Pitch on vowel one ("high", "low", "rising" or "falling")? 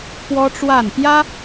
high